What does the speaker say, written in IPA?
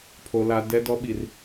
pʰo˨la˨ dɛ˦dɔ˦ ɓi˨r

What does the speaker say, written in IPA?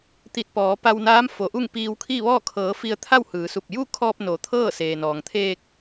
t̪i˧˩t̚pɔː˩˧ pa˧wnaː˧˥mfo˩˧ʔu˥˨ŋ piː˧wkʰi˥˨ʋɔː˥˨ kʰɤː˩˧ fi˧ə̯t̪ʰa˥˨whɯː˩˧su˧˩p̚ ju˥˨kʰɔː˧p̚no˩˧ t̪ʰɤː˥˨ seː˩nɔː˩ŋt̪ʰeː˧k̚

